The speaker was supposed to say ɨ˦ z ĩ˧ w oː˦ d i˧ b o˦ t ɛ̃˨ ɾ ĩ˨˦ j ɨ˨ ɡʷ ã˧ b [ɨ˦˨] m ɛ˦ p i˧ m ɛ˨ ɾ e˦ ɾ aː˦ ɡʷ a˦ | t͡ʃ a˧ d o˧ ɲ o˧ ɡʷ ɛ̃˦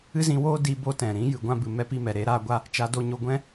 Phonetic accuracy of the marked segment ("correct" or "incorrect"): incorrect